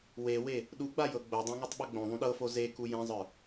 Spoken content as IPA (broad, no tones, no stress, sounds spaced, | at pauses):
w e w e | ɗ u ɡ͡b a j ɤ ɡ͡b o dˤ õ ŋ o tˤ ɓ ɤ ɡ͡b õ ðˤ ũ ɗ ɤ f o z e k u j ẽ zˤ ə˞